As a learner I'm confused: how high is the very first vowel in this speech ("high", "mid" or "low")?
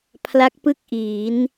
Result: low